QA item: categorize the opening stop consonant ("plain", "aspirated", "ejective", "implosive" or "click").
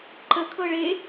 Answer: click